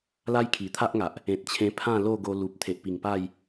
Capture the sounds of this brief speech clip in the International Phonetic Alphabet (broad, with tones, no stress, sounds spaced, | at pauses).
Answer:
l a˦ j kʰ i˨˩ t̪ʰ a˦ ʔ ŋ a˨ ʔ | ẽ˨ t̚ t͡ɕʰ ẽ˧ pʰ ã˥˧ l o˥˧ ɡ o˧ l u˨ p̚ t̪ʰ e˨ ʔ p i˨˩ ŋ p a˥˧ j